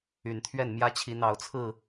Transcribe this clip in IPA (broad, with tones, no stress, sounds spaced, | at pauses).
y˨˩ n t̪ʰ ɥ ɛ˥˨ n m j ä˦ t͡ɕʰ i˨˦ n̪ ɑ˨˦ ʊ̯ t͡sʰ ɹ̩˥˨